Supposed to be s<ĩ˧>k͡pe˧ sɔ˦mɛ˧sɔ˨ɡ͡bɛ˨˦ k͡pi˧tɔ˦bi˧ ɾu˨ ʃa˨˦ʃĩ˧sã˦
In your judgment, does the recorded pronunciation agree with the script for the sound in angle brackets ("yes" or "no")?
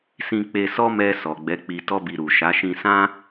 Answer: yes